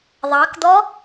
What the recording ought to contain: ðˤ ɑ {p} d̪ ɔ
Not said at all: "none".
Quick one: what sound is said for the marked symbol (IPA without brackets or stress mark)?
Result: k